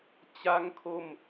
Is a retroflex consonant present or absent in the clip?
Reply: absent